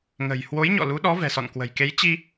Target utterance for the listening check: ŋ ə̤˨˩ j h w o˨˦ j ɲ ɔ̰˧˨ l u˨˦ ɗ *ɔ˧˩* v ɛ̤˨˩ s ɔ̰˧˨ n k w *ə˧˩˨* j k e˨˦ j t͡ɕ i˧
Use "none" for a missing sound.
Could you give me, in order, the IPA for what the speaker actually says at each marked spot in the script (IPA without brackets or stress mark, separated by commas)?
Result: ɔ˨˦, ə̤˨˩